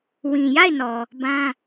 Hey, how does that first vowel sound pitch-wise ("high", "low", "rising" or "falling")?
low